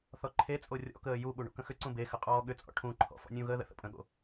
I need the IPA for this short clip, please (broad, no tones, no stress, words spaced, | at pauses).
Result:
θɔǃʰet͡sʼo rʲɔ̰kəː juɓu ɳṵkə̃xʏǀũ bexə qʼɔːɠʏt͡sʼɔ̰ ʈʰũǃʰɔ̰ fɔ̰nʲũɣəː ðə̰θə̰pʼə̃ɠo̰